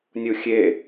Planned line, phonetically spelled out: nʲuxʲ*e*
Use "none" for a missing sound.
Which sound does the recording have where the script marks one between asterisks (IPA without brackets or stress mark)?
e